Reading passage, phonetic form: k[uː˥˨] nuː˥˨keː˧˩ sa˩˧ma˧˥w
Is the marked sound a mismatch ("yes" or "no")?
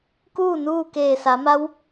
no